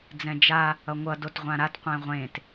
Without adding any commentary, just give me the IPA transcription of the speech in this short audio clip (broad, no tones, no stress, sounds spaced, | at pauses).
d͡z ɛ̃ d͡ʒ a | ʌ ŋʷ ʌ d o t ʁʷ ã ɾ a t qʷ ẽ ʁʷ ẽ t